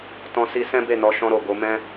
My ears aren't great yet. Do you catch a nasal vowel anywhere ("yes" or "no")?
yes